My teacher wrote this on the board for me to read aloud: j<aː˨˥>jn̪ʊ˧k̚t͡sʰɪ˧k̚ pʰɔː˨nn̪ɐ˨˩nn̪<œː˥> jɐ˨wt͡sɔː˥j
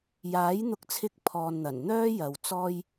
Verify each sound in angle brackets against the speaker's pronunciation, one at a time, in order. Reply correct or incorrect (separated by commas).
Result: correct, correct